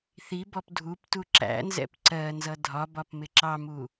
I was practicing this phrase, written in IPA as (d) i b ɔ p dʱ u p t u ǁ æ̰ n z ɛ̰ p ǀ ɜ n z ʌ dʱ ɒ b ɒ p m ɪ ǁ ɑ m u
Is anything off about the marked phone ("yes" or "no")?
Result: yes